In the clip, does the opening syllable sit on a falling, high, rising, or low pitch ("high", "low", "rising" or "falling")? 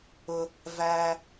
low